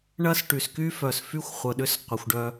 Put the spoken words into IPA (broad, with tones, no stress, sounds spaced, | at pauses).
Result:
ɳ ɐ˦ s ʈ y˨ s k y˦ f œ˨ s f y˦ xʷ χʷ ə˨ ɗ ʏ˧ s qʷ ə˨ xʷ ɖ œ˧